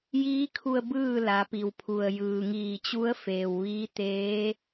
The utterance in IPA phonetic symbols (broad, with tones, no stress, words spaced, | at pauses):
jiː˧˥kʰu˧ə̯ bɯː˥˨ la˩˧pi˩wpʰu˩ə̯ jɯː˩ŋiː˧˩t͡ɕu˧˥ə̯ feː˩wʋiː˧˥t̪eː˧˥